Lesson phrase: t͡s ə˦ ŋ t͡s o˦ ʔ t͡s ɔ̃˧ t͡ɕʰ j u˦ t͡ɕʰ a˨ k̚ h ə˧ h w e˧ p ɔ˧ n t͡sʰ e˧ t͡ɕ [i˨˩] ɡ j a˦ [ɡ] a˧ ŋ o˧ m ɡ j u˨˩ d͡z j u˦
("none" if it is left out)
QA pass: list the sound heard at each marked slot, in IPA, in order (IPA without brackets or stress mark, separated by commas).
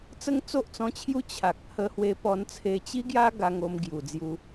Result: i˦, ɡ